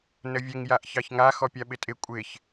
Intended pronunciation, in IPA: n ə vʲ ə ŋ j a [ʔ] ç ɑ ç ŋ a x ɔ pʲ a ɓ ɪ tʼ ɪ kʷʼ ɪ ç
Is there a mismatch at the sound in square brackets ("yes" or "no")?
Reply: no